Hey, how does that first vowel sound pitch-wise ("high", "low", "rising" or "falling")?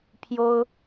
high